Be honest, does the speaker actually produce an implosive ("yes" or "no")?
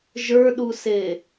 yes